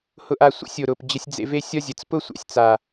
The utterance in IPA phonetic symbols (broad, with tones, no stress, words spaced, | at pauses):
hʊ˧ʔa˧ sʷḛ˦sʲo˨ɾʊ˨p d͡ʑə˧sʲd͡zḛ˧ve˦ sʲɒ˦zʲə˨t͡s pʊ˦sʷa̰˨sʲt͡sa˨